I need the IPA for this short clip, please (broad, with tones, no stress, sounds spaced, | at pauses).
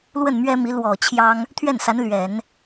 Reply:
l w ə˥˩ n m ɥ ɛ˥ m i˧˥ l w ɔ˨˩ t͡ɕʰ j ɑ˥ ŋ | t̪ʰ ɥ ɛ˥˩ n s a˧˥ n l ɥ ɛ˨˩˦ n